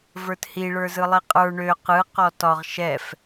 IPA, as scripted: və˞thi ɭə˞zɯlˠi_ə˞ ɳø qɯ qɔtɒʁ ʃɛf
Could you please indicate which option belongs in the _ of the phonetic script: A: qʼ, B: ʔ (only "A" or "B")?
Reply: A